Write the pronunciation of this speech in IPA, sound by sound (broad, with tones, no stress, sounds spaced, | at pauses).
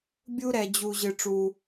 bʲ u˦ ɾ ɛ˨ d͡ʑ u˨ ʑ ɨ˨ ʈ͡ʂ u˨